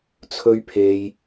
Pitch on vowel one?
high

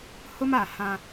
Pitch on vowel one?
high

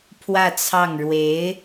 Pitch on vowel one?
falling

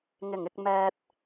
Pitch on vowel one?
low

